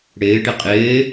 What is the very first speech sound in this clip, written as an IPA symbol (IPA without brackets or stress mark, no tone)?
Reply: ɽ